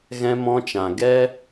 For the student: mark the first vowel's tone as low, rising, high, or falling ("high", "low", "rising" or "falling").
high